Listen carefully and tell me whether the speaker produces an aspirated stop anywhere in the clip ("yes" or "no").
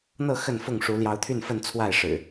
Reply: yes